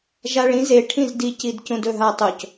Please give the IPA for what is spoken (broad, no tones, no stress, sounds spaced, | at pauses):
ʒ a ɭ ĩ z e ʈʰ ĩ z d i c i d c ũ d ɵ ɦ a tˤ o c